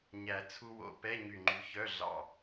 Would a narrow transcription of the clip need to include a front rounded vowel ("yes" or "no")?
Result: yes